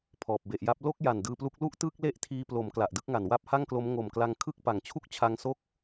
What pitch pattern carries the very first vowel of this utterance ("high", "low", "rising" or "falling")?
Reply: low